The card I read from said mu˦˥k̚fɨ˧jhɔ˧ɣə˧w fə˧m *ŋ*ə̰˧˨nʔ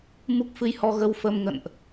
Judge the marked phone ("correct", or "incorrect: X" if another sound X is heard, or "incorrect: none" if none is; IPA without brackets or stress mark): correct